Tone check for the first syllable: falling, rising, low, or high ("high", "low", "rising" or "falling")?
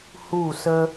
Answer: falling